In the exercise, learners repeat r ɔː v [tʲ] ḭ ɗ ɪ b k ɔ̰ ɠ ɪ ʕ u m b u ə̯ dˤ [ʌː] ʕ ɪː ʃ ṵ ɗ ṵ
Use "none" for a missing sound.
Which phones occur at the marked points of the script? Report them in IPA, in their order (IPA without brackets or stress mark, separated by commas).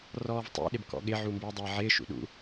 tˤ, ʌː